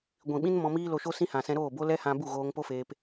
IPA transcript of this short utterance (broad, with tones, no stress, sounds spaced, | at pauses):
ɡʷ ĩ˨ ɓ ĩ˦ n m ɔ̃˧ m iː˦ l o˧ ʃ o˦ s ĩ˦ h ã˨ s ɛ̃˧ ɾ oː˦˨ b o˦ l ɛ˦ h ã˧ b u˦˨ ɣ oː˧ ŋ p o˦ f eː˧ p